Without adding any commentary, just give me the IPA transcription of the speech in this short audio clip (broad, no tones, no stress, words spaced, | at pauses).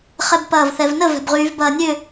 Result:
χɛbpɐːvθɛvnə vɛ̤bʁyːvbɐːnʲø